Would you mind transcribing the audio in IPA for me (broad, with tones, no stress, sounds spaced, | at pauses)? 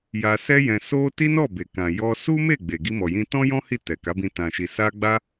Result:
j a˧ s ɛ˦ j ɛ̃˧ s o˦ t i˦ n ɔ˦˨ b e˨ k ã˨ j ɔ˧ s u˦ m e˦˨ ɡ͡b e˨ ɡ i˧ m ɔ˨ j ĩ˧ t ɔ̃˦ j ɔ̃˦ h i˦˨ t ɛ˨ k a˨˦ b ĩ˧ t ã˨ ʃ i˨ s a˧ ɡ͡b a˦